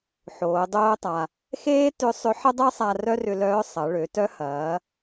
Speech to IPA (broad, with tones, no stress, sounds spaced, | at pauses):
ħ oː˩˧ dˤ oː˧ tˤ a˩ | x eː˥ t ʏ˧˥ sˤ ʏ˧˥ ħ ə˥ dˤ ɛ˥ sˤ a˧ r œ˥ r ʏ˧ l œː˧˥ sˤ ɐ˩˧ ɭ ø˩˧ t œ˧˥ h ɐː˩˧